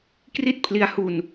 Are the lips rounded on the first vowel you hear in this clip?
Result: no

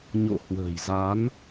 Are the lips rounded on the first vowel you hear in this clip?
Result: yes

